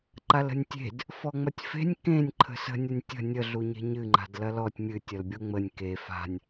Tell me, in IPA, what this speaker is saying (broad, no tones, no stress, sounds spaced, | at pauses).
ǃ a l ə̤ nʲ tʲ e̤ d | f ɔ ŋ͡m ɐ tʲ f e̤ nʲ k ẽ nʲ ǃʰ ə̤ s ə̤ nʲ ɐ nʲ tʲ ə̤ nʲ ə ɮ u ɲ e̤ ɲ ɨ ŋ͡ǃ a̤ d l ɐ l ɔ tʲ mʲ ɨ tʲ ɐ l bʲ o ŋ͡m ə nʲ k e f a̤ nʲ